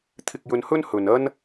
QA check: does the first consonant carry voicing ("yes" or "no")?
no